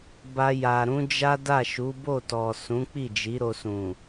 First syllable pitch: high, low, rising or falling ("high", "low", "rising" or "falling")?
high